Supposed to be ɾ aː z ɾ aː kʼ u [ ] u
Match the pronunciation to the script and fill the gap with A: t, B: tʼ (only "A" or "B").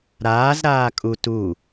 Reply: A